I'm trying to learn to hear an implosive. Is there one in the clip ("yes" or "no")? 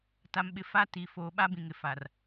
yes